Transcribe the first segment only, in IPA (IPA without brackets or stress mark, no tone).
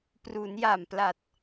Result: p